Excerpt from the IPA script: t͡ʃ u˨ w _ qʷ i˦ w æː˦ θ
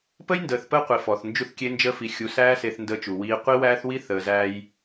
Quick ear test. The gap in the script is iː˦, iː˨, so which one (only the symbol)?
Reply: iː˦